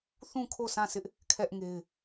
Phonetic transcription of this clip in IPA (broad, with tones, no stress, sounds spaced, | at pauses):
θ ũ˦˨ kʰ o˦˨ s ã˦˨ s ɪ˦ ʔ | kʰ ɛ˦ ʔ ŋ e˦ ɪ̯